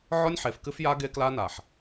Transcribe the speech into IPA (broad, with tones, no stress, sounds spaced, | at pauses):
ʕ ɔ˦ nʲ ħ e˨ f k ɨ˦ f j a˦ ɡ e˦ k l a˦ n a˨ ħ